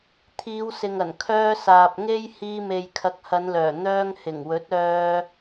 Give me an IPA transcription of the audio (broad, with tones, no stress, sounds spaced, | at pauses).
t̪ʰ iː˨˧ w s ɪ˨ ŋ ɐ˨˩ n kʰ œː˧ s aː˨ p̚ ŋ e˥ j h iː˧ m e˨ j kʰ ɐ˨˥ k̚ h ɐ˨˧ n l œː˨˩ n̪ œː˧ ŋ h ɪ˨˩ ŋ w ɵ˨˥ t̚ œː˧